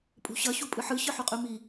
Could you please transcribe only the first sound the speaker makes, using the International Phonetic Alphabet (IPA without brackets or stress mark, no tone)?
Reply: pʼ